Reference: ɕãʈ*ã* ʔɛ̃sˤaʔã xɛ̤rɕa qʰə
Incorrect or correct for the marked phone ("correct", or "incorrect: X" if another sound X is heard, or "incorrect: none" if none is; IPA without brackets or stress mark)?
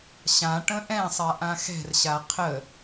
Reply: incorrect: ə̃